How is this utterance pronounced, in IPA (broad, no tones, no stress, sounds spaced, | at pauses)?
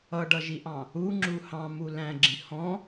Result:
ʌ ɖ ʌ ʒ i ʔ ɑ̃ | u ŋ͡ǁ u h ɑ̃ m u l æ̃ ɡ͡ǁ ĩ h ɔ̃